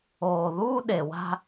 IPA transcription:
oː˨ ð uː˦ ɗ e˨ w a̤˦

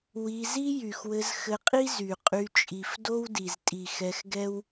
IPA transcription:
w i˧ z i˦ j y˨ x w ɘ˧ z x ɘ˧ qʼ i˦ z y˨ qʼ y˧ t͡ʃʼ i˨ f d o˦ w d i˨ z tʼ i˨ x ɛ˧ x ɡ ɛ˦ w

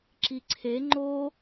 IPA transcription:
ǁ i ǀʰ e ŋ͡ǃ o

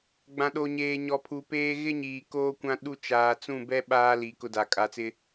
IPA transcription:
ɡ͡b ã˨ ɗ o˨ ɲ eː˨ ɲ ɔ˨ pʰ u˨ p eː˦ ɣ ɪ˦ ɲ iː˨ k oː˦ kʷ ã˦ ɗ u˦ t͡ʃ aː˨ t͡s ũ˦˨ b ɛ˦ ɓ aː˦ l i˨˦ k ʊ˦ d a˨ kʼ a˨˦ t͡s ɪ˦

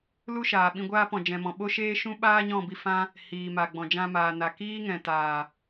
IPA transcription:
l u˦ ʃ aː˨ ɓ ĩ˧ ɡʷ aː˦ p ɔ̃˧ d͡ʒ ɛ̃˧ m ɔ̃˧ ɓ o˦ ʃ eː˦ ʃ ũ˦ ɓ aː˦ ɲ ɔ̃˦˨ b i˧ f ã˦ | h iː˨ m a˨ ɡ͡b ɔ̃˨ d͡ʒ ã˧ m aː˨ n a˨ k iː˦ ŋ ɛ̃˨ t aː˨

